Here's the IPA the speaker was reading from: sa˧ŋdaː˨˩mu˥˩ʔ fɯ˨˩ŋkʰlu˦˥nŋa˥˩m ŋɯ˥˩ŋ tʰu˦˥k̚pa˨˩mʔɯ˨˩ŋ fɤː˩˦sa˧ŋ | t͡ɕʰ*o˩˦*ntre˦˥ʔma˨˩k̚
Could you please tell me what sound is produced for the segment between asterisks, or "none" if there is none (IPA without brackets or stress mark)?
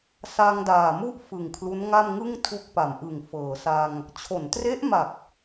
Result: o˩˦